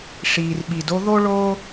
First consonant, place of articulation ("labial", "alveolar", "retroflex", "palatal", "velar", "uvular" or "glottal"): retroflex